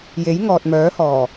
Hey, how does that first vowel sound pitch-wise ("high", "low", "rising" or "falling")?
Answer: rising